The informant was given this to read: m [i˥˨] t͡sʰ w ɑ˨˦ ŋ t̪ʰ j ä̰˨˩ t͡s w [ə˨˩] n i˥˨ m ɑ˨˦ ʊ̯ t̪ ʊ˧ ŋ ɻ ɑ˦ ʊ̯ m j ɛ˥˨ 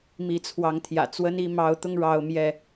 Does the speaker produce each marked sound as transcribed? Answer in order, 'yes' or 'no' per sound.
no, no

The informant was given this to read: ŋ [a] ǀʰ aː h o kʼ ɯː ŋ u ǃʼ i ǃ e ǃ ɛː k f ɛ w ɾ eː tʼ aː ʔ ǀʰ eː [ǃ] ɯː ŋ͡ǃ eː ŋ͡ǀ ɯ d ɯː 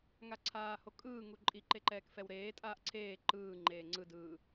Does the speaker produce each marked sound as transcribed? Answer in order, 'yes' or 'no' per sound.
yes, yes

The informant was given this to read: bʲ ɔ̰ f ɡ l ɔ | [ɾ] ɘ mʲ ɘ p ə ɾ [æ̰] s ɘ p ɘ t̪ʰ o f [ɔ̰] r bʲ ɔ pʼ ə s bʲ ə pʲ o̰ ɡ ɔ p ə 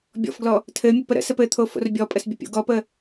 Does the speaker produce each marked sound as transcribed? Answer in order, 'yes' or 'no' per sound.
no, no, no

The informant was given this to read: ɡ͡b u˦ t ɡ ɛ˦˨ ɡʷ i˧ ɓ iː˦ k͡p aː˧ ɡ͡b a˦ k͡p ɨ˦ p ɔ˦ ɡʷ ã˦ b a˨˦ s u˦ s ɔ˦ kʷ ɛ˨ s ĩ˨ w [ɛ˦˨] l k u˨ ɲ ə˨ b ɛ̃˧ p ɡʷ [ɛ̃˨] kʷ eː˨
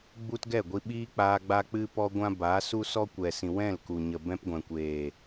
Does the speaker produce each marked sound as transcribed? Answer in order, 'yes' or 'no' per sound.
no, yes

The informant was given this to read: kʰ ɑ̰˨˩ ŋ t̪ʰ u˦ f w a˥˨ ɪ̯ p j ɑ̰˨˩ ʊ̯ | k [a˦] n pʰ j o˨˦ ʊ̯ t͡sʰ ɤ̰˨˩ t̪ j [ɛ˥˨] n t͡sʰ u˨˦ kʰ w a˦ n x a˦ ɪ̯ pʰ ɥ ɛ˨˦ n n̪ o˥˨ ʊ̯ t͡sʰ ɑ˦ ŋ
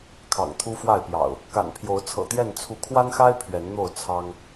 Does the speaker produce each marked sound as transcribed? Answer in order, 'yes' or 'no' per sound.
no, yes

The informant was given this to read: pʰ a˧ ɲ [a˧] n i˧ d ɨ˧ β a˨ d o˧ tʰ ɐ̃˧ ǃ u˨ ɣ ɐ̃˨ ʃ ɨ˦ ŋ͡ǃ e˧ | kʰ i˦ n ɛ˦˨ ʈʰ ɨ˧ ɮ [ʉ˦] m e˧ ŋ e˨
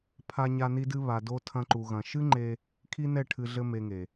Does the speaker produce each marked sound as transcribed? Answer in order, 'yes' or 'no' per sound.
yes, no

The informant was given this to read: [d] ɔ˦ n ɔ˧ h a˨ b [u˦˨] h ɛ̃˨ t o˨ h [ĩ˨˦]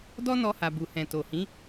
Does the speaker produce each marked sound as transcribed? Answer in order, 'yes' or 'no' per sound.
yes, no, yes

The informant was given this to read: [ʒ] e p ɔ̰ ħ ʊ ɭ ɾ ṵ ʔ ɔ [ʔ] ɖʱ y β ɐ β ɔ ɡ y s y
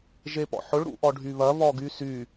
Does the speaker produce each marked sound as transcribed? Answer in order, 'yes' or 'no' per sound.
yes, no

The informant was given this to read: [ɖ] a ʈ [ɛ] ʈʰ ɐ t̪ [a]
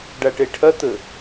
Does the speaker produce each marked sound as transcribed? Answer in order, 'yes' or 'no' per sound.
yes, yes, no

